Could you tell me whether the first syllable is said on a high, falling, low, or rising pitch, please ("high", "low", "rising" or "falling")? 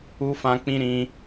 high